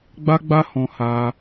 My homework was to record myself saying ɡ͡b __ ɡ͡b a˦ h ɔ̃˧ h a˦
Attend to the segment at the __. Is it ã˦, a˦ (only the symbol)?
a˦